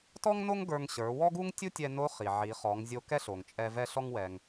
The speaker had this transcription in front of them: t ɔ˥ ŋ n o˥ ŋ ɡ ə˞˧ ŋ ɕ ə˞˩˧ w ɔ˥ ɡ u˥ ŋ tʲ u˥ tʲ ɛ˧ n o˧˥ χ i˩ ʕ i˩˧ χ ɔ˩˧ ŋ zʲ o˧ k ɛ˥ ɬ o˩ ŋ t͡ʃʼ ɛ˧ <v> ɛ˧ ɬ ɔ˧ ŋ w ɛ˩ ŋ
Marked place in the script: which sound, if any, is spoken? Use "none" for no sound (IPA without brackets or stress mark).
v